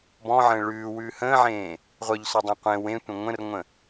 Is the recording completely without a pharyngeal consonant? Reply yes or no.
no